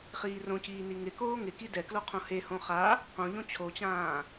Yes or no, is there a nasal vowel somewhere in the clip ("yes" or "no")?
yes